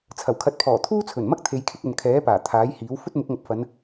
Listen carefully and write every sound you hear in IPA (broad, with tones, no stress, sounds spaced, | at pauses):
t͡sʰ ɐ˨˩ w kʰ ɐ˨˥ t̚ pʰ ɔː˨˩ t̪ʰ uː˥ t͡sʰ ɵ˨˩ n m ɐ˥ k̚ t̪ʰ e˨˧ j kʰ ɪ˧ k̚ ɵ˨ n kʰ ɛː˨˥ p aː˨˩ t̪ʰ aː˨˥ j h iː˨˥ w f ɵ˥ t̚ m ʊ˨˥ k̚ ŋ ɐ˨ p̚ f ɐ˨˧ n